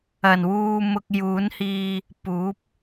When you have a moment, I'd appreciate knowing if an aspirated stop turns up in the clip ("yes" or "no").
no